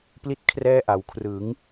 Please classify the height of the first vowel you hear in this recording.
high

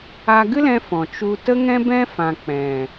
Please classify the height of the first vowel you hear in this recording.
low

